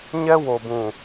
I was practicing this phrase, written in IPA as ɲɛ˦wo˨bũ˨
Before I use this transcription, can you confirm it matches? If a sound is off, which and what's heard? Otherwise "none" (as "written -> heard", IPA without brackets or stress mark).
none